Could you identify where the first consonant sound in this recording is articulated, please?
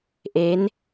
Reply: glottal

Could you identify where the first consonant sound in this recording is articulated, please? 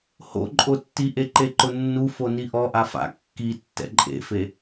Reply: glottal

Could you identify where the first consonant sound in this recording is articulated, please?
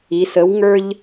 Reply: alveolar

